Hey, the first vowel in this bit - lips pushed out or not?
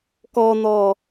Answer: yes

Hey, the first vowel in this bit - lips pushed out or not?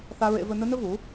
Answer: no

